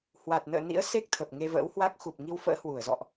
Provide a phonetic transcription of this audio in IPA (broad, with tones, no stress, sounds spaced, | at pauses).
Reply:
h w a˨˩ t̚ n ə̰ː˧˨ n ḭ˧˥ ə̯ s e˦˥ k̚ t̪ʰ ə˨˩ p̚ ŋ e˧ v ə̰ː˧˥ w h w a˦˥ k̚ x u˨˩ p̚ ŋ i˧ w f ə̰ː˧˥ h w u˧˩ ə̯ z ɔ̰˧˨ ʔ